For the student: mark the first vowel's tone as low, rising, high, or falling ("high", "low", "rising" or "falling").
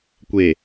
low